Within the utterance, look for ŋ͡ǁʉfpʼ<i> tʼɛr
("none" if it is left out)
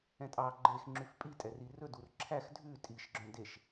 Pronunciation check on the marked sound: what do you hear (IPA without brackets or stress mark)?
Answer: i